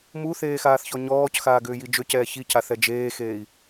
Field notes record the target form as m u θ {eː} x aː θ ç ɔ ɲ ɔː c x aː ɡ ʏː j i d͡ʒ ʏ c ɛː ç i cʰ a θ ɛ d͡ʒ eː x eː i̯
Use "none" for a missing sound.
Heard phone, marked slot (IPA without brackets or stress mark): eː